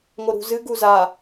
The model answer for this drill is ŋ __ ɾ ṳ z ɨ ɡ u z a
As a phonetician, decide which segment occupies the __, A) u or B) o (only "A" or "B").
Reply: B